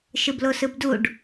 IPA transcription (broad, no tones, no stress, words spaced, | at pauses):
ʃɯblosɯbduɖ